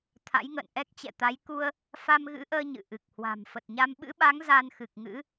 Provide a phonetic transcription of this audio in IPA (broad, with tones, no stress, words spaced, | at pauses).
t̪ʰa̰˧˥jŋə̰ː˧˨n ʔɛ˦˥k̚t͡ɕɛ̰˧˨t̪a˨˦j ku˧ə̯ | fa˧mɣɨ̰˧˥ʔəː˧ ɲɨ̰˧˨ʔɨ˨˩k̚hwa̤˨˩m fə˨˩t̚ɲa˧m ɓɨ̰˧˥ɓa˨˦ŋ za˧nxɨ˨˩k̚ŋɨ̰˧˥